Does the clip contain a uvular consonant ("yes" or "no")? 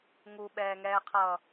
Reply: yes